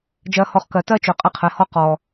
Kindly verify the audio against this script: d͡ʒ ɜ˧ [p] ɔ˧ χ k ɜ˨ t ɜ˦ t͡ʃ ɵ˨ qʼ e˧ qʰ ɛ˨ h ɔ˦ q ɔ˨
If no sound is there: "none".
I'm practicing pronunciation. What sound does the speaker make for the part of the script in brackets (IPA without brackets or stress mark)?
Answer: h